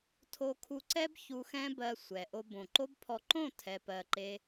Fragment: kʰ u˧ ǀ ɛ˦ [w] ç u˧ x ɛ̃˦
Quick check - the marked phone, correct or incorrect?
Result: incorrect